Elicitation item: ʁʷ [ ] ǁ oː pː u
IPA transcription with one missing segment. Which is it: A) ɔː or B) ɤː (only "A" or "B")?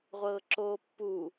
B